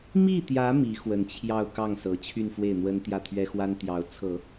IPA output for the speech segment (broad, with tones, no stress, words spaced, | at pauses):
mi˥˩t̪jä˧˥ mi˧˥ xwə˧˥nt͡ɕʰjɑ˥˧ʊ̯ kɑ˥˩ŋ sɤ˧˥t͡ɕʰy˥˧nfwe˥˩ɪ̯n̪wə˥n t̪jä˥˩t̪ʰɥɛ˥xwa˥n t̪jɑ˧˥ʊ̯ t͡sʰɤ˨˩˦